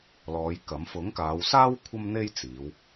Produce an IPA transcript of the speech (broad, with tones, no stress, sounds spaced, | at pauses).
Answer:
l ɔː˨˧ j k ɐ˨˥ m f ʊ˨˥ ŋ k aː˨˧ w s aː˥ w kʷʰ ɐ˥ m n̪ e˥ j t͡s iː˨˧ w